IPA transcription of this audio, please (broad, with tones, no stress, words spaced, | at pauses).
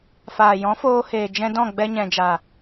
faː˨jɔ̃˨˦foː˧heː˨ d͡ʒɛ̃˧dɔ̃˦˨ ɡ͡bɛ˧ɲɛ̃˨d͡ʒa˨